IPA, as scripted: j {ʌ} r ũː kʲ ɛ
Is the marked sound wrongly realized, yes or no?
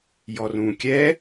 yes